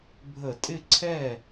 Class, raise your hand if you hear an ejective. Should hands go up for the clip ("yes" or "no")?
yes